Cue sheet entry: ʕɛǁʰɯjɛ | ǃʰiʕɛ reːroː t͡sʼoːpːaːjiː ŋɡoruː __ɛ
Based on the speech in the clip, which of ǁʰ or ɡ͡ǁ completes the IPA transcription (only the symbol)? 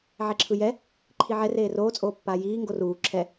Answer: ǁʰ